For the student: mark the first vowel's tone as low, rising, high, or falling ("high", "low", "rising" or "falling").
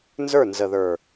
falling